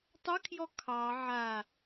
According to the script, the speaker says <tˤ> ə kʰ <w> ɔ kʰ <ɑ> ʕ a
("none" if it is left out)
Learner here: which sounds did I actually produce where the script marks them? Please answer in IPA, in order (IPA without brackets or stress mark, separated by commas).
tˤ, j, ɑ